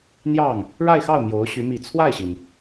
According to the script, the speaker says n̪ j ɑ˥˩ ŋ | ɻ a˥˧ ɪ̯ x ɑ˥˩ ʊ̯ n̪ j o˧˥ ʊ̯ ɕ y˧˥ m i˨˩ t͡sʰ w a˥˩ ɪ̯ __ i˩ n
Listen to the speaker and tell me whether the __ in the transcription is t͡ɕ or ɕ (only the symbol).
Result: ɕ